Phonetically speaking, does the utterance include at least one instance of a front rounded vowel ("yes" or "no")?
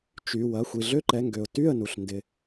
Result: yes